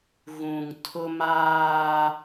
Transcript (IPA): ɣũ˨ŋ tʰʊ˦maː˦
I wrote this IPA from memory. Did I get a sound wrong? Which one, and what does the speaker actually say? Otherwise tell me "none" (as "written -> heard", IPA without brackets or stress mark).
none